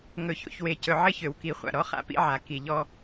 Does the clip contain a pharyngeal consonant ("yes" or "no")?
yes